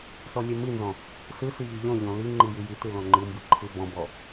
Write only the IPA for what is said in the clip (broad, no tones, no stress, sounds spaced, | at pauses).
s ɔ lʲ ɛ m i n z ɔ̃ | s ɯ s i ʎ ɯ ʎ ɔ̃ ʎ ɔ̃ l i ŋ͡ǃ i j i j i t ɯ l ɔ̃ ŋ͡ǃ ɯ m b ɯ ǃʰ ɯ b ɔ̃ b ɔ